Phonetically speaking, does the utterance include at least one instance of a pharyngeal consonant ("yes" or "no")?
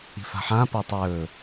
yes